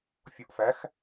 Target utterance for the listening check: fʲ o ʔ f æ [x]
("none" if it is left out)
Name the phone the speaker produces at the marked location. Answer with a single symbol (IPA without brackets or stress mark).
x